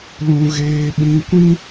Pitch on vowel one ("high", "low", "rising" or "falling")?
high